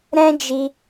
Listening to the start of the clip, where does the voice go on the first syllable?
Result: high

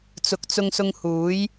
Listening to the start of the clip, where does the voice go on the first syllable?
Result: rising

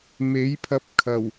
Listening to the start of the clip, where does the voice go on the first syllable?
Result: rising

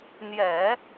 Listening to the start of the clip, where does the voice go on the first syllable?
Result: low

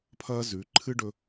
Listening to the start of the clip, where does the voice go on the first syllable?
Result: high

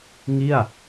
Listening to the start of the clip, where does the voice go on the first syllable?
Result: falling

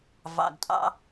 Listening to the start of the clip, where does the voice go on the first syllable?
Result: low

